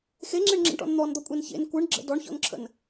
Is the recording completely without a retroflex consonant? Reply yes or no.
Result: no